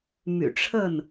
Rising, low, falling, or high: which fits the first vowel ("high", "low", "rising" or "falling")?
low